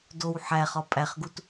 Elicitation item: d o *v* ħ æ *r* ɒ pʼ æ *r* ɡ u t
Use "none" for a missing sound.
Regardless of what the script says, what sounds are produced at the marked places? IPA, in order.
w, χ, χ

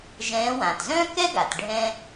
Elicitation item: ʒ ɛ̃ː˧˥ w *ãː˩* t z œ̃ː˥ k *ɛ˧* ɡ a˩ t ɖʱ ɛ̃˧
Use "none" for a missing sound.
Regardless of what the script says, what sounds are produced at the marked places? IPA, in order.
ãː˩, ɛ˥

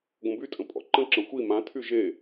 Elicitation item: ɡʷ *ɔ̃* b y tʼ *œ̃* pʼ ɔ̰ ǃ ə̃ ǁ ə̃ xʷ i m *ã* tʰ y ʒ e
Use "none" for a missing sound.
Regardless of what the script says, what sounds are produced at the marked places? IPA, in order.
ə̃, ə̃, ã

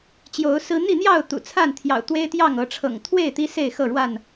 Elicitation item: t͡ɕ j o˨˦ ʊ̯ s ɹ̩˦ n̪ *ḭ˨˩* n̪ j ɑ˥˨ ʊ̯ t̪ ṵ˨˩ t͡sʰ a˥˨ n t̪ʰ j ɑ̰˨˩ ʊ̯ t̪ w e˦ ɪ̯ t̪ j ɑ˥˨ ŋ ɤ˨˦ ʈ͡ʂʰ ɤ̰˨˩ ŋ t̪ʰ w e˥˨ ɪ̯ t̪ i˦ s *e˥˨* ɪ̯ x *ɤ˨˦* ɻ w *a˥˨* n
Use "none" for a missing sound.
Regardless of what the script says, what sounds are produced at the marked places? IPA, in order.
i˥˨, e˥˨, ɤ˥˨, a˥˨

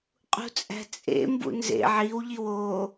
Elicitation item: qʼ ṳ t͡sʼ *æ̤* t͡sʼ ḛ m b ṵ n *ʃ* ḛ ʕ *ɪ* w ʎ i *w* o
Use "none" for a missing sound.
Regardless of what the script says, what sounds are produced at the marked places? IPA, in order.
æ̤, z, i, w

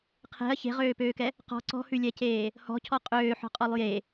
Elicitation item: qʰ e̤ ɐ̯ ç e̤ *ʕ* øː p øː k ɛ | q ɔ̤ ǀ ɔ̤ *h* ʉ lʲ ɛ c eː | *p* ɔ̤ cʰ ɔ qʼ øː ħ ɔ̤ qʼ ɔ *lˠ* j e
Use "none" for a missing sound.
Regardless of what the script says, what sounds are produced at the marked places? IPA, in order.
ʁ, h, h, lˠ

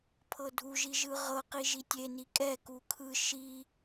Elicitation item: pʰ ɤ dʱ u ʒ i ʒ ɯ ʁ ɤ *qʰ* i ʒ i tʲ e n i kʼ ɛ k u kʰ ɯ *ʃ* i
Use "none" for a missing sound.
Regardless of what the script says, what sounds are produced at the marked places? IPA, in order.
q, ʃ

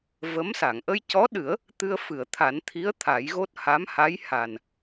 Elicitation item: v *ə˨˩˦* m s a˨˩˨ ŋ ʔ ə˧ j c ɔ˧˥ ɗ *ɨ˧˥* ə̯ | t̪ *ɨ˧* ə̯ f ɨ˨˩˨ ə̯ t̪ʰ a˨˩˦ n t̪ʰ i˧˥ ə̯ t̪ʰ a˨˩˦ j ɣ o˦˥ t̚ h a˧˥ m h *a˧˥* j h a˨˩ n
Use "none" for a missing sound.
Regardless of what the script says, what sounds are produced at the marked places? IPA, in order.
ə˧˥, ɨ˨˩˦, ɨ˧, a˧˥

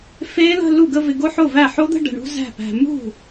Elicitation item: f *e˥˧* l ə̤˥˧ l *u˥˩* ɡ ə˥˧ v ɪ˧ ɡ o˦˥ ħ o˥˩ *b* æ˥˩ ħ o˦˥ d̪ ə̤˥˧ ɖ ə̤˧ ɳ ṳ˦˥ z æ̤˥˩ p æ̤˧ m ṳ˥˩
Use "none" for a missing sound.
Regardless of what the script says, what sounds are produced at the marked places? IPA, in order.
e˦˥, u˥˩, v

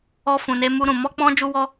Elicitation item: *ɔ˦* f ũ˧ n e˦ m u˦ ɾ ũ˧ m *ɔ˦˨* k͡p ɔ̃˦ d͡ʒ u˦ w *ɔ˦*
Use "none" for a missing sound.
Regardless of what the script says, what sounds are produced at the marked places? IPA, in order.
ɔ˦, ɔ˦, ɔ˦

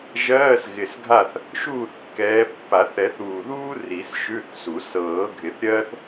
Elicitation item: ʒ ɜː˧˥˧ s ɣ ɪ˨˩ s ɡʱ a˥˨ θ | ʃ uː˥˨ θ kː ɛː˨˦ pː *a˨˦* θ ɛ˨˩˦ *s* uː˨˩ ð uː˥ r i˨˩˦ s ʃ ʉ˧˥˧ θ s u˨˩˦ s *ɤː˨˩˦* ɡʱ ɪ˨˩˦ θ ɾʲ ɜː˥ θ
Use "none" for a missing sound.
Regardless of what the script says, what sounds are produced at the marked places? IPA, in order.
a˨˩˦, θ, ɤː˨˩˦

